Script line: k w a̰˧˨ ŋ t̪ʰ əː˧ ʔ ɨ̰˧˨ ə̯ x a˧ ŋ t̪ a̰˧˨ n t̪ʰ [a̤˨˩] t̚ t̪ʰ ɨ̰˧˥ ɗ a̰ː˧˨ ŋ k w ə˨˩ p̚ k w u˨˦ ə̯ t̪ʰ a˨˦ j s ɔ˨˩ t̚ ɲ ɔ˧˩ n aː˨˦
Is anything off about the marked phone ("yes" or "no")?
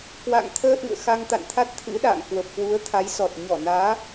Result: yes